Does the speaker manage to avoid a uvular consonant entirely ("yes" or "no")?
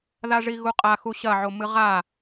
no